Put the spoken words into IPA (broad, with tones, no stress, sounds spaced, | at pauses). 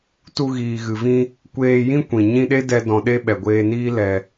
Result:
t u˧ ɣ iː˨ ɣ ɨ˨ v ĩ˧ | kʷ eː˧ j ĩ˦ kʷ ĩ˨ ɲ ĩ˧ ɗ e˦ d ɛ˧ d ɔ̃˧ ɗ e˦ ɓ ɛ˨ ɡʷ eː˧ n iː˦ l ɛ˧